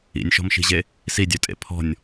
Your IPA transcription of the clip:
ḭnʲʃɔ̤mʃi̤ʑe | sidʲœtʼḛ pʰɔ̤nʲ

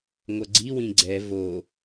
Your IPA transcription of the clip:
ŋʷʌɡ͡ǀiwĩ ɡ͡ǀɛ vo

